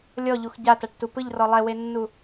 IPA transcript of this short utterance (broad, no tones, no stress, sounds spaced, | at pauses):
lʲ ɔ ʎ u x ɟ a t a ʈ t u p ɯ ʎ r ɔ lˠ ɛ w e nː u